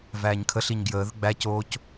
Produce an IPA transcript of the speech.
v æː ɲ kʰ ə ɬ i ɲ ɡ j əː ð ə ɡ͡b æ c oː c

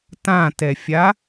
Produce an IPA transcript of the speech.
t ã t ɛ fʲ a

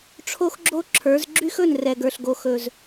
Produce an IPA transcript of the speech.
ʈ͡ʂʰ o˦ x ɡ͡ǁ o˦ ǁʰ ə˞˨˦ z ɡ͡ǁ y˦ x ɵ˦˨ n r ɛ˨ ɡ ə˞˨ ɬ ɡ o˨ x ɵ˨ z

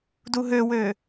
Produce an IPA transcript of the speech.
d u ɦ ø w ø

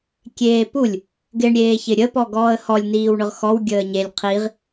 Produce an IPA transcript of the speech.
kʲ eː p u lʲ | ɡ ɪ ɳ ɾʲ eː ç ɪ ɾʲ ə p ɔ ɡ ɔː ə̯ h ɔ lʲ n iː w ɳ ʊ ʁ x ɔ w ɡʲ əː ɲ e lʲ qʰ i ʁ

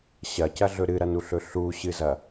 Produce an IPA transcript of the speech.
ɕ ɐ c ɐ ɮ ɵ ɾ ɨ ɾ ɐ n u ɬ ɵ ɬ u ɕ ɨ z ɐ

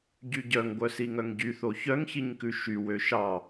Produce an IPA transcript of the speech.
ɟ y ɟ œ ŋ ɡʷ œ s i ŋ œ ŋ ɟ y θ o ç œ ŋ ç i ɲ k ʉ ʃ y w ø ʃ ɑ

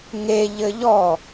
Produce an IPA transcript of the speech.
ŋ e ʎ ɘ ʎ ɔ

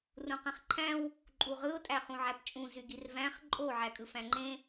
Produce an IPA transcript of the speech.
r ũ q ẽ χ ǃʰ æ̃ w | ǃʼ u ʁ ɯ ʊ̯ tʼ æ χ ũ ʕ æ p t͡ʃʼ ũ z y ɡ i r v æ̃ χ ǃʼ o ʕ æ kʼ ɯ f æ̃ ŋ͡ǃ ẽ

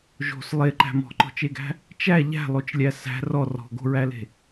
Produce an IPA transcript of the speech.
ʒ o̤ s lˠ e ǃ æ̤ m ɔ̤ ǃ ɔ̤ t͡ʃ e ɡ æ̤ | t͡ʃ æ ʎ æ̤ lˠ o t͡ʃ lʲ æ s æ̤ r ɔ r ɔ̤ ɡ o̤ ɹ æ l e̤

